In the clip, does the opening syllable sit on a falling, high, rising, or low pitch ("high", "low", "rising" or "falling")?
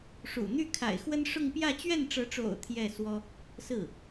low